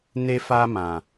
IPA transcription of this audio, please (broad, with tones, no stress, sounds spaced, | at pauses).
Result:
n e˧ f a˧ m ã˨